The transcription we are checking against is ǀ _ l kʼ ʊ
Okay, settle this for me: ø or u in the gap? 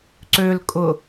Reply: ø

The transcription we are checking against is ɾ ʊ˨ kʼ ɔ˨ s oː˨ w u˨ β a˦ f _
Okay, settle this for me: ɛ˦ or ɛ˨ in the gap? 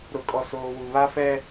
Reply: ɛ˦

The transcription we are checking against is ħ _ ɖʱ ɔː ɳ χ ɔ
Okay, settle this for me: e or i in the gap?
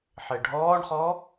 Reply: e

